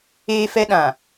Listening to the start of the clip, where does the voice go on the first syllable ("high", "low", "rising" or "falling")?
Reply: high